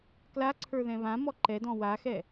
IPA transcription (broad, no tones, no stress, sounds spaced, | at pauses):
k l a ǀʰ ə˞ ð ɛ̃ β ã m ɔ ǃ ɛ d ɔ̃ w a x ɛ